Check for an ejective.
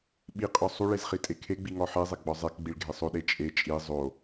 present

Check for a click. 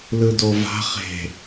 absent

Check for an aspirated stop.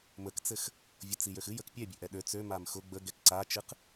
absent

